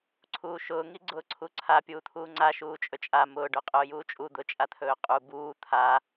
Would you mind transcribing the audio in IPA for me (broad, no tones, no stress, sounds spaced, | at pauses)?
ǀʰ uː ʃ ʊː ŋ i ɡ͡ǀ ʊː ǀʰ u ǀʰ a pʲ uː t̪ʰ uː ŋ͡ǀ a ʃ uː t͡ʃʼ ɵ t͡ʃʼ a m ʊː ɖ ɵ qʼ ʊː j uː t͡ʃʼ u d̪ ʊ t͡ʃʼ a t̪ʰ ɵː qʼ u b uː t̪ʰ a